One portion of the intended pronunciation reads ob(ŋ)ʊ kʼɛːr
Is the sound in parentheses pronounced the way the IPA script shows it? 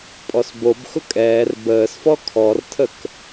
no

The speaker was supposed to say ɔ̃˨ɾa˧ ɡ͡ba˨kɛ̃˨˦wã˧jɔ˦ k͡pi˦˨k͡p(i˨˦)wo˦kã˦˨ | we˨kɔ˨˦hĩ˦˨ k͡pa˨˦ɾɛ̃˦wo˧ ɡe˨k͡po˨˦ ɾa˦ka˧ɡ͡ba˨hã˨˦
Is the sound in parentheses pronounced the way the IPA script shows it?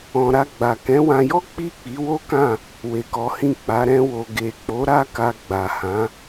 yes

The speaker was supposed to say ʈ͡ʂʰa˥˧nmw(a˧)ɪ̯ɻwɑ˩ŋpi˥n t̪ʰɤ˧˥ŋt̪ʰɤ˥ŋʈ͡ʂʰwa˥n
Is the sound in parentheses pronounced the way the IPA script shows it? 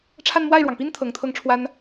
no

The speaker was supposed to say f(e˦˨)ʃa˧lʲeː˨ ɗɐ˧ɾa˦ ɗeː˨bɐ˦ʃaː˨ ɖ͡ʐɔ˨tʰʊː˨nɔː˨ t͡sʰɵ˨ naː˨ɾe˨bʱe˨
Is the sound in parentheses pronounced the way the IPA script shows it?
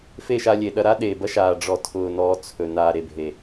yes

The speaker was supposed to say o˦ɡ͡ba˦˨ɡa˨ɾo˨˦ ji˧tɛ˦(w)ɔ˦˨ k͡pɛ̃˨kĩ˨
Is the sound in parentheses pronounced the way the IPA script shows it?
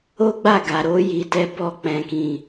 no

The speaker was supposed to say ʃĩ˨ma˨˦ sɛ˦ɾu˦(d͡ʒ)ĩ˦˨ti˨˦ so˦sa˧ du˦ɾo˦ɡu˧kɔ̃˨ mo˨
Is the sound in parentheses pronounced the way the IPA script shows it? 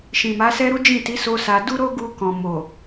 yes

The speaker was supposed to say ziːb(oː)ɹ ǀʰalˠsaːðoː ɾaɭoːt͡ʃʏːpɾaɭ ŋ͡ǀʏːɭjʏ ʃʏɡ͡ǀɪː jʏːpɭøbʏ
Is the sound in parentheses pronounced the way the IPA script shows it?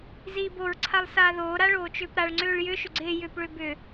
no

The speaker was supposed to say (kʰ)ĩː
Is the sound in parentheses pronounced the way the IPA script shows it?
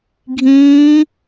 no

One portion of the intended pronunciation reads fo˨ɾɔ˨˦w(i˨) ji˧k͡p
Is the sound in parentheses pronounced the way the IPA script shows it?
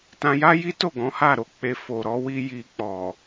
no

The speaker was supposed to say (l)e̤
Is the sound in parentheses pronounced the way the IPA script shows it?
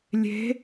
no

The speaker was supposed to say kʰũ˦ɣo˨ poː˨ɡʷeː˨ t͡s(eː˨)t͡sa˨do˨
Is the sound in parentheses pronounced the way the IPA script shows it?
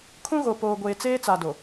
no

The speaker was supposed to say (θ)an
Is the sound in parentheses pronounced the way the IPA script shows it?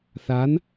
yes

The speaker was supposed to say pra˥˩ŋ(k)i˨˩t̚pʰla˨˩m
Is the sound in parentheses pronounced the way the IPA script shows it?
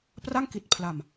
yes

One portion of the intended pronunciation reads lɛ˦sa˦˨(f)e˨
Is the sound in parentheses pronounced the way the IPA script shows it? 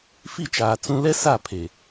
no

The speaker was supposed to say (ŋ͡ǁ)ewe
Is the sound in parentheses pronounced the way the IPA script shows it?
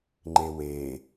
no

